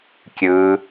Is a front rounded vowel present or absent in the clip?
absent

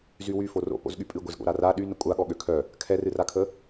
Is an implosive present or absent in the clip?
present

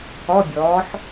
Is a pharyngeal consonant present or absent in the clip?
present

